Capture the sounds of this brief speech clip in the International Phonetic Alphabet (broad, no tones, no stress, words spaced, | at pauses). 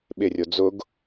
ɓɪrʲo d͡zʊɡ